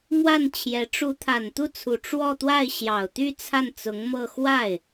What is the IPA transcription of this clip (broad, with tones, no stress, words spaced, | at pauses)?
mwa˥˩nt͡ɕʰjɛ˧˥ ʈ͡ʂu˧˥t̪ʰa˨˩n t̪u˥˩t͡sʰu˨˩ ʈ͡ʂwɔ˥˧t̪wa˥˩ɪ̯ ɕjɑ˨˩ʊ̯t̪y˥˧ t͡sʰa˥˩nt͡sʊ˧˥ŋmɤ˥˧ xwa˥˩ɪ̯